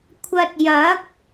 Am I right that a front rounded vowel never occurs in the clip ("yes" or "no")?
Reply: yes